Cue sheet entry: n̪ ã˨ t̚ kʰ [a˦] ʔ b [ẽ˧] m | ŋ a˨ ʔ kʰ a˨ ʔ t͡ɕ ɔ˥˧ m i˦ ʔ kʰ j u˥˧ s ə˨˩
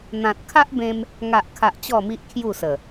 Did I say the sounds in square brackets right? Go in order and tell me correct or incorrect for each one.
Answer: correct, correct

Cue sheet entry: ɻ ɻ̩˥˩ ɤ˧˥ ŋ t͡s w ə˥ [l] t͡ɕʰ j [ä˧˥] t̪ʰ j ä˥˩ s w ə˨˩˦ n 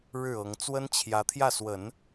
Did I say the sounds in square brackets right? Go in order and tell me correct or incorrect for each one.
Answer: incorrect: n, correct

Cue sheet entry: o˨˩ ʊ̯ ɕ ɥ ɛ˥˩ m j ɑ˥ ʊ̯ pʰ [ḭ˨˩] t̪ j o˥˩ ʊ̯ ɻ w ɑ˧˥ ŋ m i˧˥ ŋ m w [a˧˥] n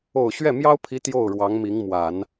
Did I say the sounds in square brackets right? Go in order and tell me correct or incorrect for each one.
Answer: incorrect: i˧˥, incorrect: a˨˩˦

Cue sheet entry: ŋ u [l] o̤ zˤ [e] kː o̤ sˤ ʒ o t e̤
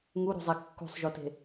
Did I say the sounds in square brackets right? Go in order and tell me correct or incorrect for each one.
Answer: incorrect: ɾ, correct

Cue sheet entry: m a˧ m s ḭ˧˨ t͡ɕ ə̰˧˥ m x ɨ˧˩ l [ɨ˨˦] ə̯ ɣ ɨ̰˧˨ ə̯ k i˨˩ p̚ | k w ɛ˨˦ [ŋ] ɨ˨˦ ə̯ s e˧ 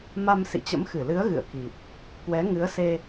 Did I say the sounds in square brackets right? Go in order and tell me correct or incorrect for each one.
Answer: correct, correct

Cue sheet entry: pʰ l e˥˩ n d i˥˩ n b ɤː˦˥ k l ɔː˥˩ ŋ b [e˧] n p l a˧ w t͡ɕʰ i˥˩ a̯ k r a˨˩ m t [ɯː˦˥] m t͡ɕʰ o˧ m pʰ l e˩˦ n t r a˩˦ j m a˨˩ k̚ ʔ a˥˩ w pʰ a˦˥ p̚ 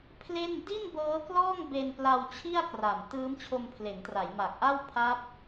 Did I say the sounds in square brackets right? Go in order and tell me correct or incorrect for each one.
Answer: correct, correct

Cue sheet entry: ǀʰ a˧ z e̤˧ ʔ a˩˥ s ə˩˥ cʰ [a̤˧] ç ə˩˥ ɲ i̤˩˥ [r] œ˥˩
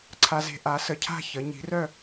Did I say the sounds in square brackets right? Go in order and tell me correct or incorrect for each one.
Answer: incorrect: a̤˥˩, correct

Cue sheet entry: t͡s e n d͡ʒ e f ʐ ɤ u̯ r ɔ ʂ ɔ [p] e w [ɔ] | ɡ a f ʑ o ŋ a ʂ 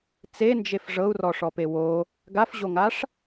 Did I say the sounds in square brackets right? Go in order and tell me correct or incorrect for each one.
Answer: correct, incorrect: o

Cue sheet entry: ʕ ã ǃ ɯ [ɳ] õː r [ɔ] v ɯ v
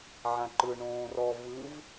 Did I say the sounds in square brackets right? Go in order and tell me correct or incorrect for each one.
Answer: correct, correct

